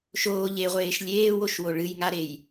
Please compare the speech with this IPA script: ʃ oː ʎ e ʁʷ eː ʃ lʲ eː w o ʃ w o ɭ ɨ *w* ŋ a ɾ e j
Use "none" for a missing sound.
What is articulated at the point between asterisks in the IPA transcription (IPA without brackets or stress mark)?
j